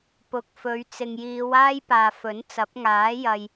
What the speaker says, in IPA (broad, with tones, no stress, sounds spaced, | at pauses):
p ʊ˨ k̚ f ɵ˨˧ ɥ t͡s ɪ˨ ŋ j iː˨˧ w aː˥ j p aː˨ f ɵ˨˥ n t͡s ɐ˨˥ p̚ ŋ aː˨˥ j ɐ˨ j